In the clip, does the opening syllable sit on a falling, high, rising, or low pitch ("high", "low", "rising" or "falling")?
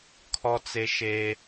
high